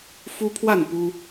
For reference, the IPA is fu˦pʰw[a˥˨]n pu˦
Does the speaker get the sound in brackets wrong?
no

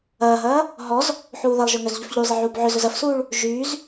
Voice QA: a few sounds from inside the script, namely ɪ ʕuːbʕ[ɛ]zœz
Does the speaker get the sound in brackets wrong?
yes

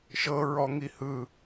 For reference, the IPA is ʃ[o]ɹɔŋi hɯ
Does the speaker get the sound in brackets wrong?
yes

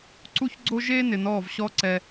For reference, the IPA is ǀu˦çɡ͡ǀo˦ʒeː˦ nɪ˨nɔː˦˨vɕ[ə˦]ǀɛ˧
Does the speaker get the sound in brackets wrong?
yes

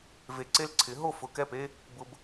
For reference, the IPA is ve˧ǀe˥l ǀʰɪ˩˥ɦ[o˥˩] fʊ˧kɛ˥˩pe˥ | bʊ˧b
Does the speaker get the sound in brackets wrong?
no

